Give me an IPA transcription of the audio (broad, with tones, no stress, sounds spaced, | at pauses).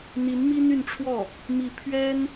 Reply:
n̪ i˧˥ n m i˥ n̪ y˥˧ n ʈ͡ʂʰ w ɔ˥˩ | m i˥˩ pʰ ɥ ɛ˥ n